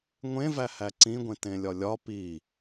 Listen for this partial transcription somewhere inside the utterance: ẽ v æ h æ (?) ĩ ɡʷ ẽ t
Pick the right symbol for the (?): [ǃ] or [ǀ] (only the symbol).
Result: ǀ